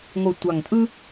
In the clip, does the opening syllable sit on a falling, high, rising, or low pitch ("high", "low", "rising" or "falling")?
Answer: low